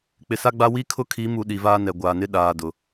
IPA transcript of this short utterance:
k͡p ɪ˨ s a˦ ɡ͡b a˦ w i˦ kʰ ʊ˦ kʰ i˨˦ m u˨ ɗ i˨ v aː˦ n ɛ˨ ɡʷ aː˨ n ɪ˦ ɗ aː˨ d ʊ˨

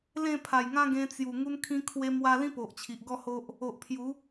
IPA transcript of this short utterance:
l ẽ˥˧ pʰ a˨˩ j ŋ ã˦ ɡ ẽ˧ t͡s j u˨˩ ŋ u˧ n kʰ ĩ˧ kʰ w e˧ m w a˧ l ĩ˦ p o˨ ʔ t͡ɕʰ i˨ ʔ ɡ ɔ˥˧ h o˦ ʔ | o˨ ʔ pʰ j u˨˦

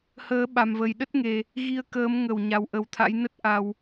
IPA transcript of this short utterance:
h əː˨˦ ɓ a˨˩ m v ə˨˩ j ɗ ə˦˥ t̚ ŋ e˨˩ | ɣ i˧ ə̯ k əː˨˦ m ŋ ə˧˩ w ɲ a˨˩ w ʔ ə˨˩ w t̪ʰ a̰˧˥ j n ə˦˥ t̚ ʔ a˨˩ w

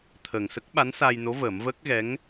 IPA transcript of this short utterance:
t̪ʰ ə˨˩ ŋ s ə˦˥ k̚ ɓ a˧˥ n s a˧ j n o˧˥ v əː˨˩˦ m v əː˦˥ k̚ ɣ ɛ˧˥ ŋ

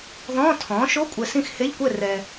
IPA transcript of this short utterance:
ð ɔ̃ː˧˥˧ tʰ ɔ̃ː˩˥ ʃ o˧˥˧ kʷʼ ɛ˨ s ĩ˥˨ x h e˧˥˧ ʎ kʷ ɛ˥˨ r ɛ˨

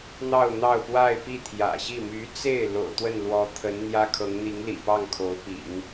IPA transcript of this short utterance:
n̪ ɑ˥˧ ʊ̯ n̪ ɑ˥˧ ʊ̯ p w a˥˧ ɪ̯ p i˥˩ t̪ʰ j ä̰˨˩ ɕ i˥˩ m y˧˥ t͡s e˥˩ ɪ̯ l o̰˨˩ ʊ̯ t̪ w ə˥˩ n l w ɔ˧˥ t̪ʰ ə˧˥ n n̪ j ä˥ kʰ ɤ˧˥ ŋ n̪ i˧˥ ŋ l ḭ˨˩ p ɑ˥˩ ŋ kʰ o˧˥ ʊ̯ p ḭ˨˩˦ ŋ

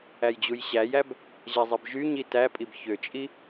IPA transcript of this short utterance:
æ j d͡ʑ u j ɕ æ j æ b | ʑ æ zˤ i b ʒ y ɲ i t æ pʼ i b ç ø t͡ʃʼ i

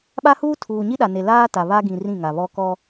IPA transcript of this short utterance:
ɓ a˦ h uː˦ tʰ uː˨ ɲ i˦ ɗ a˨ n e˨ l aː˦ t a˨ β a˦ ɡ ĩ˨ r ĩ˦˨ ŋ a˨ β ɔ˦ k ɔ˦

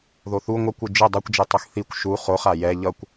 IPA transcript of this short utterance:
ð o θ u ŋʷ ʌ kʷ ɯ d͡ʒ ɯ dˤ ʌ kʷ d͡ʒ i tˤ ɯ x θ i kʷ ʃ u χ o χ a j ɛ ʎ ʌ kʷ

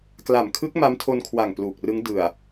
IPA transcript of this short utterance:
k l a˨˩ m kʰ ɯ˦˥ k̚ m a˦˥ m tʰ o˧ n kʰ w a˨˩ ŋ p l uː˨˩ k̚ r ɯ˦˥ ŋ d ɯ˨˩ a̯

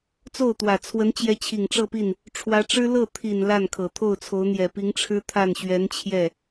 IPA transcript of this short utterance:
t͡s o˥˩ ʊ̯ t̪ w ä˨˩ t͡sʰ w ə˧˥ n t͡ɕ j ɛ˧˥ t͡ɕʰ i˨˩ ŋ ʈ͡ʂ ɤ˥˧ p i˥˩ n | ʈ͡ʂʰ w ä˧˥ ʈ͡ʂ ɻ̩˥ l ɤ˥˩ t̪ʰ i˨˩ n l a˥˩ n kʰ ɤ˨˩ t̪ʰ o˥˩ ʊ̯ t͡sʰ o˧˥ ʊ̯ n̪ j ɛ˨˩ p i˧˥ ŋ ʈ͡ʂʰ ɻ̩˥ t̪ʰ a˥˩ n ɕ ɥ ɛ˧˥ n t͡ɕʰ j ɛ˥˩

